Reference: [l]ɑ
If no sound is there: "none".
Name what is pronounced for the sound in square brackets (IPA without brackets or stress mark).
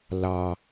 l